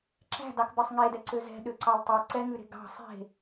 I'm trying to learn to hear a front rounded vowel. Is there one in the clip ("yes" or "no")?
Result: yes